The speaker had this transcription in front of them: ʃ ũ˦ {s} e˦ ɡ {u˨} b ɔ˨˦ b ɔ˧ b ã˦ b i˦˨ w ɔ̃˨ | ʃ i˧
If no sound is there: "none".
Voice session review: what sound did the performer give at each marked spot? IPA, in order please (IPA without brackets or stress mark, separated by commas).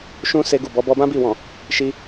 s, u˦˨